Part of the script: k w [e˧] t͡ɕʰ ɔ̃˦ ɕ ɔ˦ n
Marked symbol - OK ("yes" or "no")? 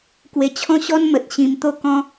yes